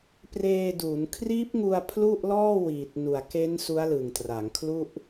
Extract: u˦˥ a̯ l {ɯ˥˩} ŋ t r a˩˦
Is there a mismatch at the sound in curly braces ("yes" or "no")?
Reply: yes